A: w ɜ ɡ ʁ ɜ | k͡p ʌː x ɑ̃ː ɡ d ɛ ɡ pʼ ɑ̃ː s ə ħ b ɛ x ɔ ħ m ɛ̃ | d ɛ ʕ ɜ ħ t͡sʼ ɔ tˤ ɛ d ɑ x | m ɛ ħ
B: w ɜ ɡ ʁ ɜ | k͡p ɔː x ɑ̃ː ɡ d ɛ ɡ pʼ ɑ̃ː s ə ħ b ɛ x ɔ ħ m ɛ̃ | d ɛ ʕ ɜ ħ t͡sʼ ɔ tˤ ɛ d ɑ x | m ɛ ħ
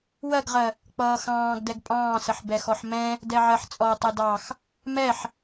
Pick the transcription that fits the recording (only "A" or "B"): A